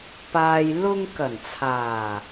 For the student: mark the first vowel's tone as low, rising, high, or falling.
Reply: low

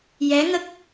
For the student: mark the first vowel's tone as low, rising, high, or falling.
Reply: rising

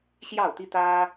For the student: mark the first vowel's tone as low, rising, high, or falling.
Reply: falling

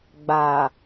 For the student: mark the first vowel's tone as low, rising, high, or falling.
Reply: low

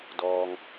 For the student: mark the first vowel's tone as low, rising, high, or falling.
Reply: low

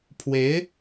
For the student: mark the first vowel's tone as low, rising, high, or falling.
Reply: rising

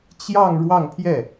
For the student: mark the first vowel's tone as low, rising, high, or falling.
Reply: falling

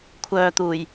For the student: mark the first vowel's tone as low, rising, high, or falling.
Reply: low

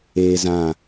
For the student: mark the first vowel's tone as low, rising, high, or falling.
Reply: high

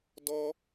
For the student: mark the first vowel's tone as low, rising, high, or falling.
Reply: high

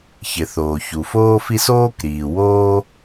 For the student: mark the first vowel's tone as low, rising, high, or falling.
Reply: low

